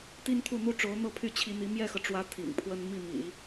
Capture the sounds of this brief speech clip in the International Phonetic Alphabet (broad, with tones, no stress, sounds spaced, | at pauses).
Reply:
t̪ i˥ n t̪ʰ u˥˩ n̪ u˥ ʈ͡ʂ o˧˥ ʊ̯ n̪ ɤ˥˧ pʰ y˥˩ t͡ɕʰ i˧˥ n̪ i˧˥ m j ɛ˥˩ x ɤ˩ ʈ͡ʂ w ä˧˥ t̪ʰ ḭ˨˩ ŋ pʰ w ə˥ n m i˥˩ m ḭ˨˩˦